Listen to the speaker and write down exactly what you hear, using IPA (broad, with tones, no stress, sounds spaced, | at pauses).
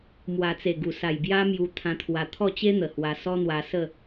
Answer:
m w a˨˩ t͡s e˨˩ ɡ u˨˩ s a˨˩ j b j a˦ m j u˧ t̪ʰ ã˧ t̪ʰ w a˧ t̪ʰ ɔ˥˧ t͡ɕ e˦ n̪ ə˨˩ h w a˧ s ɔ˦ n̪ w a˧ s ə˥˧